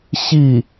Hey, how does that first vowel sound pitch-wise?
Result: falling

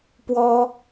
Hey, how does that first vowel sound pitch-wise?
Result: high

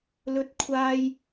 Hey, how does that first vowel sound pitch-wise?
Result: high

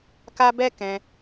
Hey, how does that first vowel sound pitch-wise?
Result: high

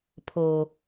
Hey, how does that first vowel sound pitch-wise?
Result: low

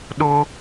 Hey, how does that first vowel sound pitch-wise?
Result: high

